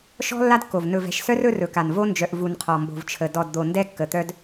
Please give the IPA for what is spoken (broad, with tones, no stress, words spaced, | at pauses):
ʃɔ̤˦ lːa˦dkːo˨v nɵ˨vɛ̤˨ʃsœ˦r ɵ˦rɵ˨ka˨n vo˦nd͡ʒœ˨ʔ vu˨nqʰɔ˨ mbo̤˨vt͡ʃʰə˨ dɔ˨dd̪o˨ ndɛ˦kːə˨t̪œ˦d